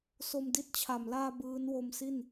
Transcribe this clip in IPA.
so˧mdi˥˩t̚t͡ɕʰa˨˩m laː˧ bɯː˦˥n wo˧msi˥˩n

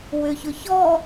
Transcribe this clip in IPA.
wʏçʊ çɔ

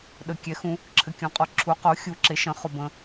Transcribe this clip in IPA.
ɗə˨ kʲɛ˩˥xũ˨ | ǁʰɘ˨kʲɔ̃˩˥qʼɔ˨ ǁʰu˩˥qo˩˥xʲu˨ǁe˩˥ ʃə̃˩˥χo˨bə̃˨

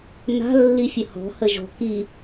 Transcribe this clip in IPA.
na̤ lːifʲəhɔ̤ həʒɔ̤ ki

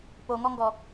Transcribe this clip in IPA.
poŋɔŋɡɔ

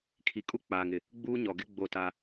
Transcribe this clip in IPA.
kʰi˨kʼu˦k͡paː˨ŋɪ˨ | ɡ͡buː˦ɲɔ˨ɡɪ˦ ɡ͡bo˦˨ta˦

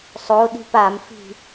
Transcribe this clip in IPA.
sˤo ɗi̤pamfi̤

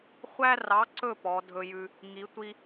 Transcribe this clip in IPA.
χʷæ˦rɑ˨˥ǀɵ˦˨ pɔ˨˥dʱɵ˦jʉ˦ | ŋi˨˥ tʷi˦

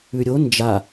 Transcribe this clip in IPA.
ʉɾʲo nd͡ʒa

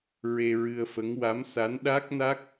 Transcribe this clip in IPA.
ɹe˧ɹɨ˧ə̯fə˧˥ŋ wa˧˥msa˧˥n ɗa˦˥k̚na˦˥k̚

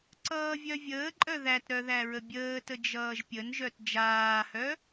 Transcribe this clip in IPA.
ǀʌːvʲœvʲəːǃʼœ ðætɾœ ðæɹəbʲəːtə d͡ʒʌːʒpʲənʒœt d͡ʒaːhœ

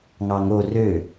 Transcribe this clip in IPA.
ŋɑŋo rø

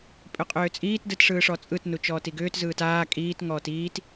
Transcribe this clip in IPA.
pʼʏqʼʏːt͡sʼiːt dɯtʂɯːʂɔt͡sʼɯt nut͡ʃɔːtiɡʏːt zɯːtaː kʼiːt ŋɔːtiːt

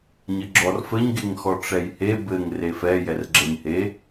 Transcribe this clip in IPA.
ɲɘɡ͡ǁɔrfɘɲ ɡeŋxɔʈ͡ʂɛjhe bɘŋ refɛ jɛrɡ͡ǁɛɲhe

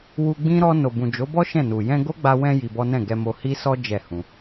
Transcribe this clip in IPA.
wu˧ɡ͡bĩ˦ ɾɔ˧ no˨bũ˨d͡ʒo˨˦bɔ˦ ʃɛ̃˦˨nu˨ jɛ̃˧ɡo˦ɡ͡ba˧ wɛ̃˧ ji˧bɔ˦ nɛ̃˦˨ɡɛ˧mo˧ hi˦sɔ˦ d͡ʒɛ˦˨ hũ˧

